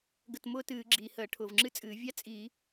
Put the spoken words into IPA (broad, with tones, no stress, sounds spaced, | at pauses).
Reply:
ɡ ə˧˩ t m ʊː˥ t ɨː˧˩˧ ɡ͡ǁ iː˩ h əː˧˩˧ ʈʰ ʊː˩ v ŋ͡ǁ ɨ˥ t͡sʼ ɨː˧˩˧ vʲ a˥ t͡sʼ i˧˩˧